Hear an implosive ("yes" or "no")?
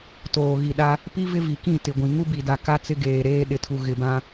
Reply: yes